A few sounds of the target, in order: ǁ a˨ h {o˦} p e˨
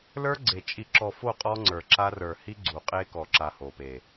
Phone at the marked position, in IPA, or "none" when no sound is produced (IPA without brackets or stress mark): o˨